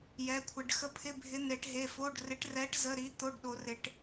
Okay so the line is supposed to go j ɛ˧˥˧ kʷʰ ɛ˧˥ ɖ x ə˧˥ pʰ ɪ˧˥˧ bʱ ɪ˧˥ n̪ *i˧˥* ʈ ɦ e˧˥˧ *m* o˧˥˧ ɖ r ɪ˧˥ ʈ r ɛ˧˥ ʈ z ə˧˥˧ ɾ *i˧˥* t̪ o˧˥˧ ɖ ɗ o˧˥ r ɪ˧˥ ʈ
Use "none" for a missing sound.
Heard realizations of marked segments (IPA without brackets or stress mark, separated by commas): e˧˥, f, i˧˥